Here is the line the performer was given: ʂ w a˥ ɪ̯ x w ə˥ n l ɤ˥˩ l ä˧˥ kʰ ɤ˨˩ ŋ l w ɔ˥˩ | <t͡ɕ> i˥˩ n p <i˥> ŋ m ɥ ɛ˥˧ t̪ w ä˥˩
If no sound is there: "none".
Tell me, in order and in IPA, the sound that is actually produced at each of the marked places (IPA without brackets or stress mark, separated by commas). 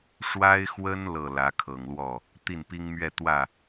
t̪, i˥